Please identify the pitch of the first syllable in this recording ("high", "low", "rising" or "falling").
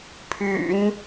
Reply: low